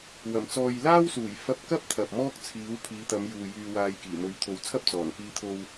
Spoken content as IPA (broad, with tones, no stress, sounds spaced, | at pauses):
w ɐ˨˩ m t͡s ɔː˨ j l aː˥ w s uː˨˩ j f ɐ˧ p̚ k ɐ˥ p̚ t̪ʰ ɐ˨ p̚ m ɔː˥ k̚ t͡sʰ iː˨˥ w pʰ iː˨˧ t̪ ɐ˨˧ m j uː˨ j yː˧ w aː˧ j k iː˨˩ m ɵ˨˧ ɥ t̪ʰ o˨ w t͡sʰ ɐ˥ p̚ t͡s ɔː˨˩ n k iː˧ t̪ʰ o˧ w